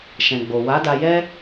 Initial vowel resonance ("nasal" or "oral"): nasal